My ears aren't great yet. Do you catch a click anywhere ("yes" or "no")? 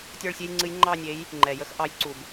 yes